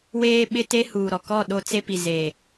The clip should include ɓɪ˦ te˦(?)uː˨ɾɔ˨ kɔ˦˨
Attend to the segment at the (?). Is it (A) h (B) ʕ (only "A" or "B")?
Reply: A